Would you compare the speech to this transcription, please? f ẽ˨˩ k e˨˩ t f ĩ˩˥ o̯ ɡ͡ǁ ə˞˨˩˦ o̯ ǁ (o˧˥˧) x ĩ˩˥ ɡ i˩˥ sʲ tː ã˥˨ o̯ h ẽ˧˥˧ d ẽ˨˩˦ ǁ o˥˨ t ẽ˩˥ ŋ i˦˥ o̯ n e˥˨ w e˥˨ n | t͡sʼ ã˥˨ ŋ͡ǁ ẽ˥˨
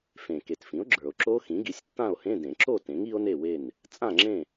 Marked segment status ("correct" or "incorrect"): incorrect